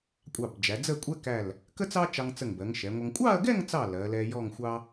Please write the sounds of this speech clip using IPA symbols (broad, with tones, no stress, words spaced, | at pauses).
kʷʼɑ˧˩bd͡ʒæ˩˧d͡zə˥˧kʷʼɛ˥ kæ˧˩l | kə˥t͡sɑ˥t͡ʃɑ˧ŋt͡sə˧˩ŋ bɜ˩˧ŋʃɛ˩˧ŋʷʌ˧ŋ kʷʼɑ˥˧ɐ̯ɡɛ˥˧ŋt͡sɑ˧˩ lɜ˩˧lɛ˧jɔ˥˧ŋxʷɑ˥